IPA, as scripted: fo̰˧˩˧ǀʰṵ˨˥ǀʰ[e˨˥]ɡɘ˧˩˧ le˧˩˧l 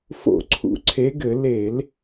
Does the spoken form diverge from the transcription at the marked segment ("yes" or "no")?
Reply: no